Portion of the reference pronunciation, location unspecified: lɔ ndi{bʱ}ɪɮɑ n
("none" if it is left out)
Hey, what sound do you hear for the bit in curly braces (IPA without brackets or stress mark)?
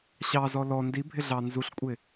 bʱ